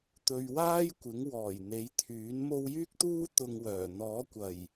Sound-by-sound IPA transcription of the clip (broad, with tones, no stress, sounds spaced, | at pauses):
t̪ ɵ˨ ɥ w aː˥ j kʷ ɪ˨˥ ŋ w ɔː˨˩ j n̪ e˨˥ j t̪ʰ yː˨˥ n m o˧ w j yː˥ k̚ t̪ uː˥ t̪ ʊ˧ ŋ w œː˨˩ n̪ ɔː˨˥ kʷ ɐ˨˩ j